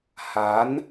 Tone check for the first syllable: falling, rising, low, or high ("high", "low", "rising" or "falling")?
rising